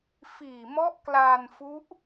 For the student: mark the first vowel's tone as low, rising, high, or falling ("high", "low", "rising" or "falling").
low